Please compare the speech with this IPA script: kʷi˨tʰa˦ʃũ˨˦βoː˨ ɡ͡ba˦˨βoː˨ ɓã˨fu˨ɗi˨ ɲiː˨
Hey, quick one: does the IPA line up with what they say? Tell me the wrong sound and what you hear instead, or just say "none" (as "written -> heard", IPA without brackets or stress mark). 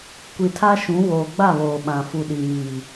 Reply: none